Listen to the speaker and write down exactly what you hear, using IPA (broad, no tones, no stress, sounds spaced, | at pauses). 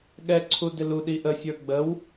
ɠ ɛ ǀʰ u d ɪ l u ɗ i ʔ ə fʲ ə˞ ɡ͡b ə w